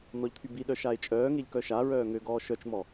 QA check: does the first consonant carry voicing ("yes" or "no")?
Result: yes